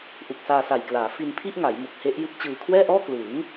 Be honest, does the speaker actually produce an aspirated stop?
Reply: yes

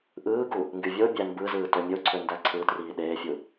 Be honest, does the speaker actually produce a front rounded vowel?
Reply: yes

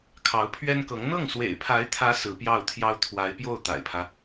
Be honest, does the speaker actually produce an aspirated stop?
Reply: yes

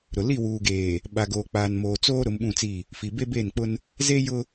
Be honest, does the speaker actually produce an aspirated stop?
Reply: no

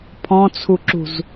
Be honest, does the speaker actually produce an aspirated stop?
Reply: yes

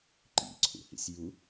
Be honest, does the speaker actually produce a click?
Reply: yes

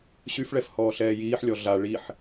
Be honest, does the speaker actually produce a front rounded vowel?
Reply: yes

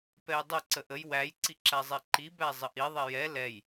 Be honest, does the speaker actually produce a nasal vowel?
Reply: no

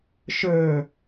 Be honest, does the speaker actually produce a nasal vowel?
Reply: no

